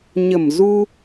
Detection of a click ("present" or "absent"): absent